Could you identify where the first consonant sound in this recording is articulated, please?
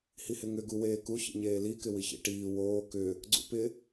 glottal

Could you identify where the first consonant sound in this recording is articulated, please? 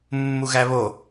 labial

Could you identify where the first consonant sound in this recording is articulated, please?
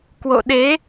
velar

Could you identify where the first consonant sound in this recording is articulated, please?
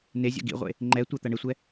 alveolar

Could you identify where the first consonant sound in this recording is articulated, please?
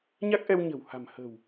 palatal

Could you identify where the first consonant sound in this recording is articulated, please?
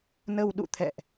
alveolar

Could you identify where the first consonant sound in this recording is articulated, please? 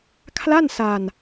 velar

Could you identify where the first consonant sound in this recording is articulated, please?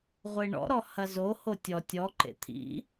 uvular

